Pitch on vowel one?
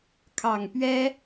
low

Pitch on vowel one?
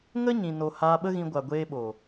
high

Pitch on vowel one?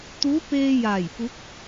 rising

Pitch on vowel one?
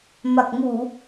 low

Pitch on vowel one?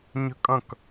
high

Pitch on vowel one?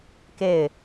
falling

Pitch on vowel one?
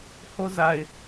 high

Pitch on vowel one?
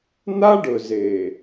high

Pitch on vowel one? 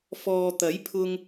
low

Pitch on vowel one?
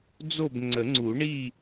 falling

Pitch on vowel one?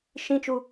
high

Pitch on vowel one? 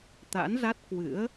rising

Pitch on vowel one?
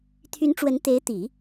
rising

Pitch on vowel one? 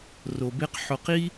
low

